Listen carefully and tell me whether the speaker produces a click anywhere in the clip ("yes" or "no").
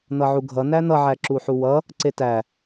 yes